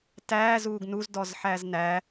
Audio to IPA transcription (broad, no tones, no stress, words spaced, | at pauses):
tæː zuːɡnuz dɔzħæznæ